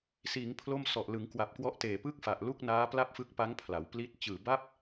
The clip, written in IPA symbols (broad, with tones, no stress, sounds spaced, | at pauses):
s iː˩˦ ŋ pʰ l o˥˩ m s ɔ˨˩ ʔ l ɯ˩˦ ŋ k w a˨˩ p̚ k w ɔ˦˥ ʔ t eː˨˩ p ɯ˥˩ k̚ f a˨˩ ʔ l u˥˩ k̚ n aː˦˥ p l a˥˩ p̚ f ɯ˦˥ k̚ p a˦˥ ŋ pʰ l a˩˦ w p l i˦˥ t̚ t͡ɕ ɯː˨˩ b a˥˩ p̚